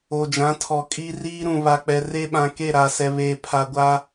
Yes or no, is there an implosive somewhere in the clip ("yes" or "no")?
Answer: yes